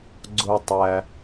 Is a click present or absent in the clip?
present